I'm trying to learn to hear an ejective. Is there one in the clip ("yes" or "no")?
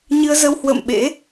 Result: no